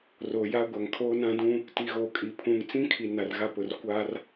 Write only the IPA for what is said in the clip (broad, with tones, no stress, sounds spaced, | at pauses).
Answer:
r o˨ j a˦ ɡʷ a˨ ŋ kʰ oː˦ n ã˦ d ũ˦ | t i˨ ɣ o˨ kʼ i˨ pʰ ũ˨ ŋ t͡s ĩ˦ kʰ i˨ n a˨ r ɣ a˦ p ʊ˨ r kʷ a˦ r